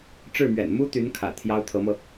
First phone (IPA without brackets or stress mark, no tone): ʈ͡ʂ